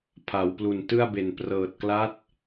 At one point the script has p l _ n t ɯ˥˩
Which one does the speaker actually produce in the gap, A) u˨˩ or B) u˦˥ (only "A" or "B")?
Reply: A